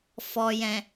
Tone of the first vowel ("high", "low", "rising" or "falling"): low